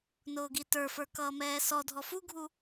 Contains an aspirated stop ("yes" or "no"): no